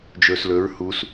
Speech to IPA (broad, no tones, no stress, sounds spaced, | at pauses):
d͡ʒ ɵː s l ɵ ɹ h u s